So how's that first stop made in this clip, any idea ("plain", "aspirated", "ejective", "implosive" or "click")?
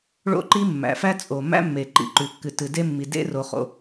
click